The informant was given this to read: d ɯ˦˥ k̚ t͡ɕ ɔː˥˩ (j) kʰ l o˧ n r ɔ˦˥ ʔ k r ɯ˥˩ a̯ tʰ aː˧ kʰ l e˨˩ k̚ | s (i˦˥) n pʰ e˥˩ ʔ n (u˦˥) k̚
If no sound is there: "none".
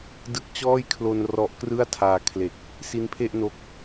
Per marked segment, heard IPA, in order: j, i˦˥, o˦˥

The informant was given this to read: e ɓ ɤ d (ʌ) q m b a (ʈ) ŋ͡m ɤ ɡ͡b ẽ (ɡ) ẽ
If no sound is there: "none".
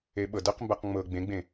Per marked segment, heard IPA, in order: ʌ, q, ɡ͡b

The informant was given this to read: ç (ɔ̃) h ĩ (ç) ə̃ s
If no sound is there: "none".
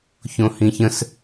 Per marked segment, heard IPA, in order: õ, ç

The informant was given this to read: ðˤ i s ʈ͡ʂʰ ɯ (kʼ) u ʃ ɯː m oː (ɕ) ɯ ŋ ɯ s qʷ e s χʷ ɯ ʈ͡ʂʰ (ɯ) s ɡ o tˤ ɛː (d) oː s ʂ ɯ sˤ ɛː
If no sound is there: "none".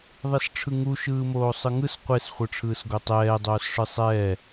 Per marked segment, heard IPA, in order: ŋ, sˤ, ɯː, dˤ

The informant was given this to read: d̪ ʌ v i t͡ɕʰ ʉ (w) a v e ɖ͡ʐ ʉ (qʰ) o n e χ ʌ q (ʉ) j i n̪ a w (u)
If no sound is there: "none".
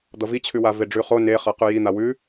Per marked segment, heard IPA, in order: w, χ, ʉ, ʉ

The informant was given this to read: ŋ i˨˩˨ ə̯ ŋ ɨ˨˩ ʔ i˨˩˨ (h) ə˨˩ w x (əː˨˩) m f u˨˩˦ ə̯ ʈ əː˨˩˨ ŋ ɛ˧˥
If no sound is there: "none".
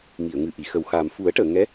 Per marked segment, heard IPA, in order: x, aː˨˩

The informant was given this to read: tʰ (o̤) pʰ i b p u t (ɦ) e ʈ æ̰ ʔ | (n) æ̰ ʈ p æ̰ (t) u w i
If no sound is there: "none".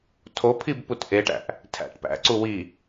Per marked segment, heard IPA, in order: o, ʔ, tʰ, ǀ

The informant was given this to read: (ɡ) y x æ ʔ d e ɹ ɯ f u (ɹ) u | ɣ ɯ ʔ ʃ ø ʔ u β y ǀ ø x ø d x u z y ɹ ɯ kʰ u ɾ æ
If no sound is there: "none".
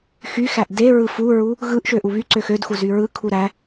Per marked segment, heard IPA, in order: x, ɹ

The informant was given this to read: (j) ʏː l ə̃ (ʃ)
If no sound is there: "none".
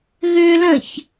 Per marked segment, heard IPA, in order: ɣ, ç

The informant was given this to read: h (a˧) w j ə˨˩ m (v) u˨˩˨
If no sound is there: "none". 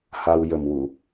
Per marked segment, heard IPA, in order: a˧, w

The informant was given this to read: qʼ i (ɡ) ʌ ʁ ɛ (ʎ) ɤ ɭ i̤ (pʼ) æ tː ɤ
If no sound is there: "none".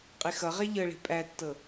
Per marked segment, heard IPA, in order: x, ʎ, pʼ

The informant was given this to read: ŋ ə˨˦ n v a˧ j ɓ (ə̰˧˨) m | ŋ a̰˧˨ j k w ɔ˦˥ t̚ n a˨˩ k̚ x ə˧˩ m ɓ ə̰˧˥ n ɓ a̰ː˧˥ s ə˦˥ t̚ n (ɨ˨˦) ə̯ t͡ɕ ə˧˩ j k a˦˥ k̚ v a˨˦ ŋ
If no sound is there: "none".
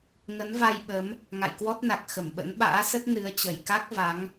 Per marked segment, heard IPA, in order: ə˨˦, ɨ˨˦

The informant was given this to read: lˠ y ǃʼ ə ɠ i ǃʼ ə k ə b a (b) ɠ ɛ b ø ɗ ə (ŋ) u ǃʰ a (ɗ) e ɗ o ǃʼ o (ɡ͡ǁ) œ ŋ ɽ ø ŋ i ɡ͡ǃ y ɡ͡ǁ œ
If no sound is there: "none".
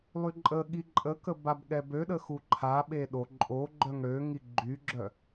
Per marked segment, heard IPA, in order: b, x, ɓ, ɡ͡ǃ

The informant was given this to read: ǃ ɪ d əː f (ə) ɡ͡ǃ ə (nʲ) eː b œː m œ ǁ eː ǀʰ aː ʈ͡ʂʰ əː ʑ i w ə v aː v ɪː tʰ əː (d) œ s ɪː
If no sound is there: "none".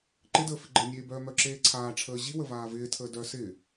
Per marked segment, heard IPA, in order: ɪ, nʲ, d

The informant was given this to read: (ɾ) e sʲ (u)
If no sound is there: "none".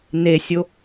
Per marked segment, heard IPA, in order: n, o

